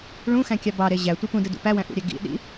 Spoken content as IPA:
ɭ ũ x æ̃ kʲ ɑ b ɑ ɾ e ʑ æ tʷ i p ũ d ɯ d ṵ p æ w æ̃ ʔ ṵ ɾʲ æ ɡ ḭ ɗ ḭ

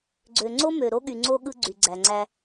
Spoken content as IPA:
ɡ͡ǀ ø˨ ŋ͡ǀ o˦ m ø˨ ɾ o˦ ɠ y˨ ŋ͡ǀ o˦ ɠ ɯ˦ ɡ͡ǀ y˨ ɡ͡ǀ æ˨ ŋ͡ǀ æ˦

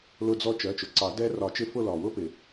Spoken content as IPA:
l ʊ˦˨ d͡z ɔ˦ t͡ʃ ɜ˩˧˩ t͡ʃ ʊ˩ ǀ ɑ˨˩˦ d ɛ˦ r ɒ˨˩˦ t͡ʃ ɪ˦˨ f ʊ˦˨ l ɒ˩ w ʊ˦ p ɪ˩

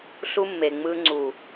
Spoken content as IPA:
ɬ u˦ mː e˨ ŋ͡m ɯ˦ ŋ͡ǀ u˨

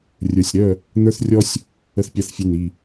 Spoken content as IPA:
rʲ ə˞˨ sʲ ɾ œ˦˨ | n̪ ə˞˦ θ rʲ ɔ˦ sʲ | ə˦ θ pʲ a˦ θ fʲ e˦˨ n i˦˨

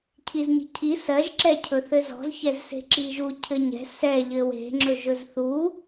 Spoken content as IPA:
cʰ i z ɲ i̤ cʰ i s ɜ ʒ ǁ ɛ cʰ ɵ θ ɘ z ɔ̤ z ç ɛ z s e̤ ǁ i ʒ u cʰ ɘ ɲ ɛ̤ s ɛ ʎ ɘ w e̤ ŋ͡ǁ ɵ ʒ ɵ z θ u

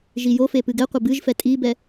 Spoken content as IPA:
ʒ i j o f e p ɨ ɡ ɛ qʷ ɘ b ɨ ʒ f ɛ tʼ i b ɛ

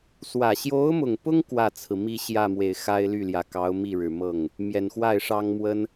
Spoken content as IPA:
s w ä˨˩ ɕ j o˧˥ ʊ̯ m ʊ˨˩ ŋ p ʊ˥ ŋ k w ä˥˩ t͡sʰ ɹ̩˩ m i˥˧ ɕ j ä˥˩ m w e˨˩ ɪ̯ x a˥ ɪ̯ l y˥˩ l j ä˨˩ k ɑ˧˥ ʊ̯ m i˥˩ ɻ ɻ̩˨˩ m ɤ˥˩ ŋ | m j ɛ˨˩ n x w a˥˩ ɪ̯ ʂ ɑ˥ ŋ m w ə˥ n

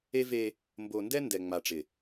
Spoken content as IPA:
e˦ v e˦ | m b o˨ n d ɛ˦ n d ɛ˨ ŋ͡m a˨ ʈ͡ʂ ɪ˨

